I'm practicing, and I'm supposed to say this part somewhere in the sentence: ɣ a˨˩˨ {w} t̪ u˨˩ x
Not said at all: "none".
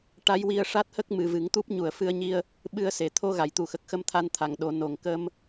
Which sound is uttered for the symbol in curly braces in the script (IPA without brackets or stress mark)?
j